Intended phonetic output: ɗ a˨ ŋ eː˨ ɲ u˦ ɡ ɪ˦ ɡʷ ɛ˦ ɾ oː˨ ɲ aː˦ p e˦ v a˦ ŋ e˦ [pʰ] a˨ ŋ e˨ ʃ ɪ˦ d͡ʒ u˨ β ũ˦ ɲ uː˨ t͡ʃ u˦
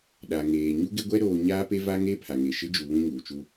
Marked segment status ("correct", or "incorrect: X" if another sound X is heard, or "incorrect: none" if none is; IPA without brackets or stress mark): correct